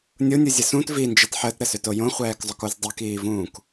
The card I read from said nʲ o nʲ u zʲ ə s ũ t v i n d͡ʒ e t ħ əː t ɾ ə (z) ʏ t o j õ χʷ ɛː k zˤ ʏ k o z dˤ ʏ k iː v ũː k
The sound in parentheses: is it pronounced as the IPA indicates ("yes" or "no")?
no